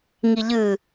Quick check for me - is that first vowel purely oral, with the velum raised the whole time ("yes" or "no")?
yes